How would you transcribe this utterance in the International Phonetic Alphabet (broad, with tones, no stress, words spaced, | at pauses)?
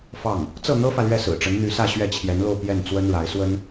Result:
fɑ˥˩ŋ | t͡sɤ˥˩n̪ɤ˥fä˨ lɥɛ˥˩sɹ̩˨˩ʈ͡ʂə˧˥nn̪y˧˥ sä˥˧ɕɥɛ˥˩t͡ɕʰjɛ˧˥nlo˥˧ʊ̯ pjɛ˥˩n t͡swə˥nɻa˧˥ɪ̯ swə˥n